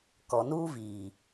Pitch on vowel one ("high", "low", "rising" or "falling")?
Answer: low